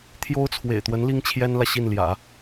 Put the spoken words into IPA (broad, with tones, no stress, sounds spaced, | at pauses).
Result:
t̪ʰ j o˥ ʊ̯ t͡sʰ w ḛ˨˩ ɪ̯ t̪ w ə˧˥ n l i˥ ŋ t͡ɕʰ j ɛ˥ n l ä˨ ɕ i˥˩ n l j ä̰˨˩˦